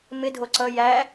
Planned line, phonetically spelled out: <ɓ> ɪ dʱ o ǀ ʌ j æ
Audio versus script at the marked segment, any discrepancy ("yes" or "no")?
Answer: yes